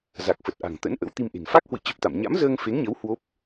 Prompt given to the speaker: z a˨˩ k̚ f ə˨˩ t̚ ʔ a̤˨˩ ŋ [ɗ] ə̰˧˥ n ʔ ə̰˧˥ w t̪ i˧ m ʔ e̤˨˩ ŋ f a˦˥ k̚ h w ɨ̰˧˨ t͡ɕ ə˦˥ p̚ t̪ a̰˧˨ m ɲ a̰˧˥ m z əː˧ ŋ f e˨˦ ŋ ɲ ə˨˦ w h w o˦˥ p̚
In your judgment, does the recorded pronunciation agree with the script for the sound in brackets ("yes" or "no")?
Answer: no